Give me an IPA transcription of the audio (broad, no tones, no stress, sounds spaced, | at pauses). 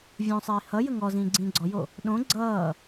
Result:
vʲ õ sˤ iː h ʌ j ə ŋ ɔ z ĩː ɡ͡ǀ ĩː ɡ͡ǀ ɔ j o | ɗ õ ɡ͡ǀ ʌː